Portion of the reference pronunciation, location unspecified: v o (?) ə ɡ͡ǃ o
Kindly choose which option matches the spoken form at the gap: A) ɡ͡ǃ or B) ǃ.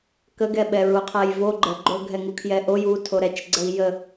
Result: A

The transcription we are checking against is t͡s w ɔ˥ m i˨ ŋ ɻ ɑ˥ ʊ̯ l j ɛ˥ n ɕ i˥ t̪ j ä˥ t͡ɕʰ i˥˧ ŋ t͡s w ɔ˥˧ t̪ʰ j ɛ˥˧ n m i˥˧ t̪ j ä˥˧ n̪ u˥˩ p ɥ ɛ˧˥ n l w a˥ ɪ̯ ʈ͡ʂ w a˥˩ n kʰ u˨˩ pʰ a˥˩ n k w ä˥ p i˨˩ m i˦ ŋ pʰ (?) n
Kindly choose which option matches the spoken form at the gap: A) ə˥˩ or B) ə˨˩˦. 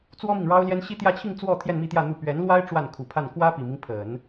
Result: B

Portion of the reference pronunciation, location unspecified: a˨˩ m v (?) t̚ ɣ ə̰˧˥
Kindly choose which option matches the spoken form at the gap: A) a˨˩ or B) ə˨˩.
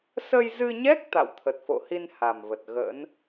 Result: B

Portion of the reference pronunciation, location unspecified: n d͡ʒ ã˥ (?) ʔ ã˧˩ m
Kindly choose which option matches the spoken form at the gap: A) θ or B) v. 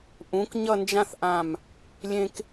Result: A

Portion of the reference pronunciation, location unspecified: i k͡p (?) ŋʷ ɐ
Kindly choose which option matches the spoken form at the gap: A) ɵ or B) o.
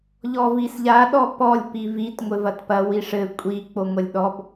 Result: B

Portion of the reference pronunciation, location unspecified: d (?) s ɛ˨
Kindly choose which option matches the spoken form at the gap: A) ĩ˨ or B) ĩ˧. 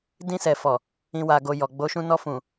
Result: B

